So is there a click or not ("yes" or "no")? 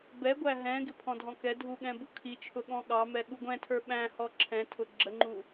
yes